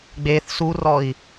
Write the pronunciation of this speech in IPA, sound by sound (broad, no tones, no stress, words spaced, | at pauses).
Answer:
ɡ͡beθ surɔi̯